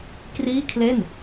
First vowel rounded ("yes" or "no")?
no